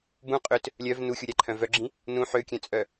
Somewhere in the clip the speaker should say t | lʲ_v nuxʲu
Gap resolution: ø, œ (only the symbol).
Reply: œ